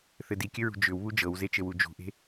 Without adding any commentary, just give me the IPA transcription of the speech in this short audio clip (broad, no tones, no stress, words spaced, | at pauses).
θɘdikʲɘɹṳ d͡ʒʏwβu d͡ʒɤwzet͡ʃɘwu d͡ʒṳʔe̤